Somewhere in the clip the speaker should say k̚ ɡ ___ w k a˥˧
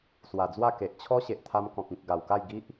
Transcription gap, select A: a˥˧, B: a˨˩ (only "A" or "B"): B